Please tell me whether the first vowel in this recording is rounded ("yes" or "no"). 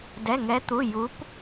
no